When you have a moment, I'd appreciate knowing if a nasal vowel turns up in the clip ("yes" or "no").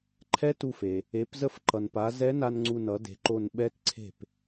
no